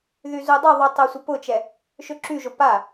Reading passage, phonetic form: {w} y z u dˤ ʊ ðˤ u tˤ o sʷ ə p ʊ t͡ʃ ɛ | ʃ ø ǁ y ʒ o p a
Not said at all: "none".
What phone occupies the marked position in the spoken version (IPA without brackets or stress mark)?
ð